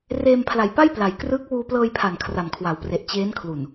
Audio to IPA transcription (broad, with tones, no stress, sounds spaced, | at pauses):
r eː˧ m pʰ l a˨˩ j p a˥˩ j p l a˩˦ j k r ɯː˦˥ k̚ w uː˧ p l ɤː˧ j pʰ a˨˩ n kʰ r a˨˩ m kʰ w a˩˦ w p r e˨˩ ʔ t͡ɕ eː˦˥ n kʰ l u˨˩ n